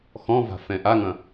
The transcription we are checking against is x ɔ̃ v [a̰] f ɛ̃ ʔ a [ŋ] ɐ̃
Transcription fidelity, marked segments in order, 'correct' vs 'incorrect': incorrect: a̤, correct

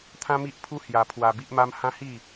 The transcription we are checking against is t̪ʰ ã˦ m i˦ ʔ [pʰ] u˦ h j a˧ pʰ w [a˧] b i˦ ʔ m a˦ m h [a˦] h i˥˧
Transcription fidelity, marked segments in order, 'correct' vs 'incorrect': correct, correct, incorrect: ã˦

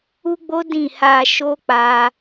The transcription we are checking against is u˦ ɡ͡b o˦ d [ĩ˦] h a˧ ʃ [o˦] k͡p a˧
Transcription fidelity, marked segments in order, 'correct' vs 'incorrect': incorrect: ĩ˦˨, correct

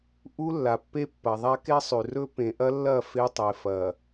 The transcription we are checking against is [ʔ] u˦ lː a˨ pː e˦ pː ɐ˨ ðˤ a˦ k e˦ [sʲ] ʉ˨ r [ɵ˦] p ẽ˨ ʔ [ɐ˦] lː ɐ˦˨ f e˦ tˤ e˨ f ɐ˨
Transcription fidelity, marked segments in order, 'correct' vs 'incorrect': correct, incorrect: sˤ, correct, correct

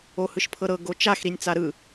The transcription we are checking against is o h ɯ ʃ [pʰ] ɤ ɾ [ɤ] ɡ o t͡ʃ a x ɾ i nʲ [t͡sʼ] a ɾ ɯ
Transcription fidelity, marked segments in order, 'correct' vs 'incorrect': correct, correct, incorrect: t͡s

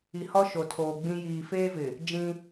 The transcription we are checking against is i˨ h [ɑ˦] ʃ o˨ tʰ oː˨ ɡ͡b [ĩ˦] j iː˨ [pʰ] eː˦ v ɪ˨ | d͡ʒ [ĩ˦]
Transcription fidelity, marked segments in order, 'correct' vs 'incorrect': incorrect: ɔ˦, correct, incorrect: f, correct

